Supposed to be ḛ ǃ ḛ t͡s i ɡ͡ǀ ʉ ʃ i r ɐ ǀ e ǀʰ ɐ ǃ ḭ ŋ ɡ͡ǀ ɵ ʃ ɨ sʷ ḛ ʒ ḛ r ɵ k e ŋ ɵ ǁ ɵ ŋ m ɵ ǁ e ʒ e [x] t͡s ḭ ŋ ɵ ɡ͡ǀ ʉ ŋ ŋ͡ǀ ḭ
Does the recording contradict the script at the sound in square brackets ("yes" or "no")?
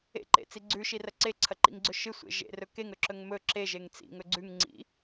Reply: yes